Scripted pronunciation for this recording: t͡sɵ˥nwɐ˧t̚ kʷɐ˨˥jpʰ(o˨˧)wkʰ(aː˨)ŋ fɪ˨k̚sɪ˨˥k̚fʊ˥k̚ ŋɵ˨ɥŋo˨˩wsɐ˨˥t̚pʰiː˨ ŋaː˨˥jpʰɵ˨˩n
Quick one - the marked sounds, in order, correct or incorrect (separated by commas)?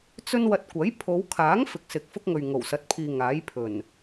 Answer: correct, incorrect